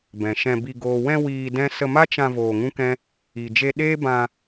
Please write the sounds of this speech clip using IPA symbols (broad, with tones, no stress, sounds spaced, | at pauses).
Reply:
b ɛ̃˨ ʃ ɛ̃˧ b i˧ ɡ oː˨ w ɛ̃˧ w iː˧ d ɛ̃˦ s ə˧ m a˦ t͡ʃ ã˧ v oː˧ ŋ ũ˦ k ɛ̃˦ | i˨ d͡ʒ e˧ ɗ eː˦ b ã˧